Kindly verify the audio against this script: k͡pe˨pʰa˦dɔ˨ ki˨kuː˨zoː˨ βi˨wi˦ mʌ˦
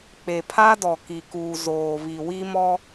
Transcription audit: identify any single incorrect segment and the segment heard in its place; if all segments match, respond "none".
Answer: ʌ˦ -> ɔ˦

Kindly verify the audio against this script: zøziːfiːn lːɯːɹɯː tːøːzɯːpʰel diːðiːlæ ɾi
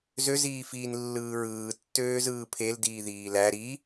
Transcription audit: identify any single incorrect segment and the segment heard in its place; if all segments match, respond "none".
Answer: none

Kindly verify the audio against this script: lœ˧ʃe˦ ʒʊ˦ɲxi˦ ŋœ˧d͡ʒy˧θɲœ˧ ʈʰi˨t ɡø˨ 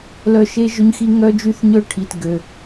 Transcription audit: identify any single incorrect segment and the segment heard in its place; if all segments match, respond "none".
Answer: none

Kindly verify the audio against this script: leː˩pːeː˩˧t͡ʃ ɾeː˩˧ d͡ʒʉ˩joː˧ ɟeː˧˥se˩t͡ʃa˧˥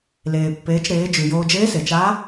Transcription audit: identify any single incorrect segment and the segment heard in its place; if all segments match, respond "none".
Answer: ɟ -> d͡ʒ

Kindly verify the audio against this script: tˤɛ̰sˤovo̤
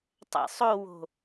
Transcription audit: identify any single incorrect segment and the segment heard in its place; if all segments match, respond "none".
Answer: v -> w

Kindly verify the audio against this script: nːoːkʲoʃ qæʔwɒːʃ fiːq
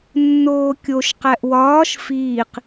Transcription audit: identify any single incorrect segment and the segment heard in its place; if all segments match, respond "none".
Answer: none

